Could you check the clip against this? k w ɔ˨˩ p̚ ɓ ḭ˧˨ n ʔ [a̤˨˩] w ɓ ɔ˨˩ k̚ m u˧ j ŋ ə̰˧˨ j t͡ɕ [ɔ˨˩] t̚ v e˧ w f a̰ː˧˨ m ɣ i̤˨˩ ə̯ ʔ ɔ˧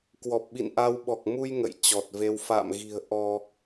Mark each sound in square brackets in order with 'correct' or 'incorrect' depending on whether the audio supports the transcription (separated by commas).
incorrect, correct